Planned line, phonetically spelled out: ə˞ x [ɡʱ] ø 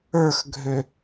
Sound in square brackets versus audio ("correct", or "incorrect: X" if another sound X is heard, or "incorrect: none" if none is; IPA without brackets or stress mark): correct